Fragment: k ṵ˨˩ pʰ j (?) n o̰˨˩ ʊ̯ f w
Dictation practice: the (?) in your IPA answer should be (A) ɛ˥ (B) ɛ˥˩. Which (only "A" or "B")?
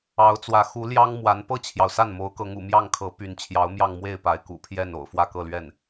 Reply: B